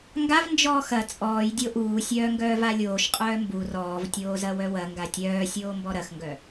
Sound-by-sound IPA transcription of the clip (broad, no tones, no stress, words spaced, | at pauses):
ŋɡav nd͡ʒɔːxɐ t͡sʼɔːj dʲoʔuː sʲœːŋɡœːvalʲoːʃ qʼœːmbu rɔːvtʲoːzɐ wœwɐ ŋɡatʲœːsʲoː mbɔɾɐxŋɡœ